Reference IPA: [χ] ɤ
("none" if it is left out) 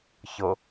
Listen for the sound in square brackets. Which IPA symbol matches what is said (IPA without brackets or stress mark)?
ç